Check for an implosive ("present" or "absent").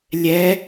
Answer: absent